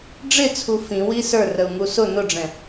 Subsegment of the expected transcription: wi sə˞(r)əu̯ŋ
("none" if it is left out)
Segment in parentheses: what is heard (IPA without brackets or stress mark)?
r